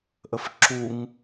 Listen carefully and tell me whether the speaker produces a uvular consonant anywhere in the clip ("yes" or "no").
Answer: no